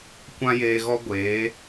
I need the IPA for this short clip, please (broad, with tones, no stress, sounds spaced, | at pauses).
kʷ ã˦ j eː˧ ɣ ɔ˦ ɡʷ eː˨˦